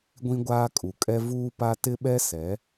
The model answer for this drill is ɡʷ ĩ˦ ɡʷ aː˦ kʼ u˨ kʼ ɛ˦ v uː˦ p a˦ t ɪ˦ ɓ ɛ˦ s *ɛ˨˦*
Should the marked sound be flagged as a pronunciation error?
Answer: no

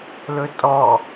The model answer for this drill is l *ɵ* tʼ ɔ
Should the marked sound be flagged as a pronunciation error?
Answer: no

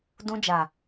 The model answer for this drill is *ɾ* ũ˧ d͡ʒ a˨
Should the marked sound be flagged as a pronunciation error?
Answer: yes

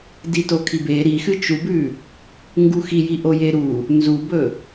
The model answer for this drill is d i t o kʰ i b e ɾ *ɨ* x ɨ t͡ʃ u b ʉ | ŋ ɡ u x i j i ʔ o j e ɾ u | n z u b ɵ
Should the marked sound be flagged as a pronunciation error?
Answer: yes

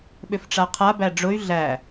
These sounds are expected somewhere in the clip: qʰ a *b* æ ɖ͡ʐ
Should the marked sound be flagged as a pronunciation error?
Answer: no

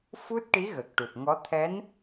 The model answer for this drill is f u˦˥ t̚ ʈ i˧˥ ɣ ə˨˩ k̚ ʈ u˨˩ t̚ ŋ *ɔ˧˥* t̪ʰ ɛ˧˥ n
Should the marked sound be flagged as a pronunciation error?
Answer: no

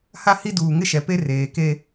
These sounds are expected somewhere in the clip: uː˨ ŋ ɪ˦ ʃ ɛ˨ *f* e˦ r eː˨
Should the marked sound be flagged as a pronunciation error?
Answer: yes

